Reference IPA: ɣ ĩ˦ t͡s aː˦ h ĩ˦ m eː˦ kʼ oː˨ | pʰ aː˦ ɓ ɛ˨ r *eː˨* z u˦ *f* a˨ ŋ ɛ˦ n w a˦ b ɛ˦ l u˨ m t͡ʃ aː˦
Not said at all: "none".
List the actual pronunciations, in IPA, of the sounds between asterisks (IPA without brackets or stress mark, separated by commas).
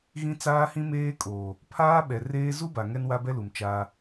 eː˦, b